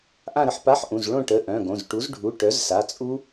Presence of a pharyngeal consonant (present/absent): present